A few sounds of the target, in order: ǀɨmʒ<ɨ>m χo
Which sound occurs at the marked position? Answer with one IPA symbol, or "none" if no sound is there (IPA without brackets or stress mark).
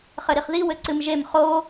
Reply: e